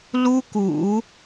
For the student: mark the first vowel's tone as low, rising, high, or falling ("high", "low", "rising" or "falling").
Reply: high